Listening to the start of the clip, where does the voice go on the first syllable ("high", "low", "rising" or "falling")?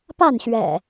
falling